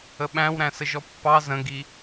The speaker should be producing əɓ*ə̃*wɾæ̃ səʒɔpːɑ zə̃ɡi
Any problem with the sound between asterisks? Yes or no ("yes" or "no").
yes